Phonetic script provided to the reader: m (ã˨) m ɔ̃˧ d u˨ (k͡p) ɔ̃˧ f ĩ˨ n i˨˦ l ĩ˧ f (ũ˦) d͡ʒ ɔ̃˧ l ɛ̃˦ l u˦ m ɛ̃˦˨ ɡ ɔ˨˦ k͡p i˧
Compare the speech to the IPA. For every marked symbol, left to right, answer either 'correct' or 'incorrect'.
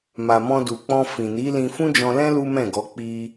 incorrect, correct, correct

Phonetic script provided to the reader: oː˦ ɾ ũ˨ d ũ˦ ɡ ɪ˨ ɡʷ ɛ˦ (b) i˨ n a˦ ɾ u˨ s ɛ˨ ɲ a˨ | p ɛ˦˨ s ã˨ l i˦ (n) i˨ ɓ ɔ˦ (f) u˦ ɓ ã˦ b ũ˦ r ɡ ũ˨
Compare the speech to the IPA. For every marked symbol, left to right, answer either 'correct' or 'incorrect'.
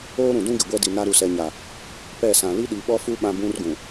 incorrect, incorrect, correct

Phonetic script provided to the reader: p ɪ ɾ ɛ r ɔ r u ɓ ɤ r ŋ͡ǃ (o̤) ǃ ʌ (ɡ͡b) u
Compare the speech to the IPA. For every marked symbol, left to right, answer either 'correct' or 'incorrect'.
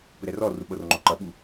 incorrect, incorrect

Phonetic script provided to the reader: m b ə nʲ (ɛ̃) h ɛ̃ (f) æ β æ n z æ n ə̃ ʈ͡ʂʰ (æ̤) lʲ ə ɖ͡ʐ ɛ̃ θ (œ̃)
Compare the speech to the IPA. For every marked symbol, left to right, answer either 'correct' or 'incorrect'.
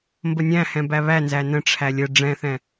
incorrect, incorrect, incorrect, incorrect

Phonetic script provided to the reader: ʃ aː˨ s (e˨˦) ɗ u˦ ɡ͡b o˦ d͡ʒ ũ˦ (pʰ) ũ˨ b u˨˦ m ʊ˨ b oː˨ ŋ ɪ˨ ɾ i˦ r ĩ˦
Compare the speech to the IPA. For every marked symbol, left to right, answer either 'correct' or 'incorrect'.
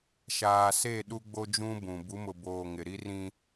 incorrect, incorrect

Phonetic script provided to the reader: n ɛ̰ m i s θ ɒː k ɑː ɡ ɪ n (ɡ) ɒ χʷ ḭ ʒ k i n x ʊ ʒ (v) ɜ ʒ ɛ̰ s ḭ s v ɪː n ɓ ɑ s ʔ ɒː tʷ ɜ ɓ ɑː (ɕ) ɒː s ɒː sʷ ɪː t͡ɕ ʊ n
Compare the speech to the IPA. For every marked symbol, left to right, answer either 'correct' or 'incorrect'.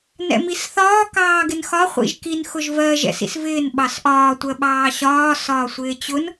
incorrect, correct, correct

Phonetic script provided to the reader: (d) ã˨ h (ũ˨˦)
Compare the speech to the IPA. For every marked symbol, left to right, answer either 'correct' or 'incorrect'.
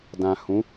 correct, correct

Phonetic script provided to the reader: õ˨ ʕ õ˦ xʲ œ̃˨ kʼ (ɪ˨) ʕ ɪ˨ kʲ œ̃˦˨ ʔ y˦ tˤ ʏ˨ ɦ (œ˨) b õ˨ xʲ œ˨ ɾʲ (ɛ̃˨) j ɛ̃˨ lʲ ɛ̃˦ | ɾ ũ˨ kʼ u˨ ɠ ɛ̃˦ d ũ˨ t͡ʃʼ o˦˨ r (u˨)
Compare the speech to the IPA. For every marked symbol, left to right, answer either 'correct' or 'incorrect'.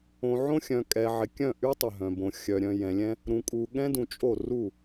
incorrect, incorrect, incorrect, incorrect

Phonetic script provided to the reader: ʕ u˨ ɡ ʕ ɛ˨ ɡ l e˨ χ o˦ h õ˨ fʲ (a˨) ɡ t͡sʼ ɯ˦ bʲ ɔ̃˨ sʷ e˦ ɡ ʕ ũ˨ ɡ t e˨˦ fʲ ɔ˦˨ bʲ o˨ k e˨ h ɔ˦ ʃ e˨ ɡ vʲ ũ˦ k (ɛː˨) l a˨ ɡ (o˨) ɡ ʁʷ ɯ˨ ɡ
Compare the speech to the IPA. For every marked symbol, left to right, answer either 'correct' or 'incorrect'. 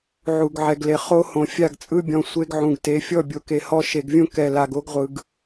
incorrect, incorrect, incorrect

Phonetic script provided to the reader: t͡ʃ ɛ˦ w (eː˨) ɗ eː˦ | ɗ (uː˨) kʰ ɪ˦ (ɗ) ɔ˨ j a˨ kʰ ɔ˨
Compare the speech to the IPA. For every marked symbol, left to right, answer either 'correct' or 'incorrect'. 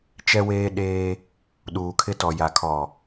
incorrect, correct, incorrect

